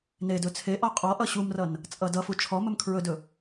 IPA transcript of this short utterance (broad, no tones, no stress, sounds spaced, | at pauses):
n e d ɵ t͡sʰ e ʔ ɔ qʼ ɔ ʔ ʌ ɕ u m r ʌ n | t͡sʼ ʌ d ʌ f u t͡ʃʰ ɔ m ɵ m kʰ ɹ ɵ d ɵ